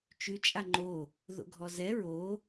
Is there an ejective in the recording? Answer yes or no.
yes